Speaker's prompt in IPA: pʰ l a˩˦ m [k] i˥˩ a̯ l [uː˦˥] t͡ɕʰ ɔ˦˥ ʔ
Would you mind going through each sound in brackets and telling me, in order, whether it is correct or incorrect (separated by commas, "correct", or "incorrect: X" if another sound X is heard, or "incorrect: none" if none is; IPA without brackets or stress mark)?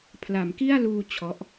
correct, incorrect: uː˧